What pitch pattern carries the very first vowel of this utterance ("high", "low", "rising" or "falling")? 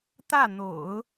falling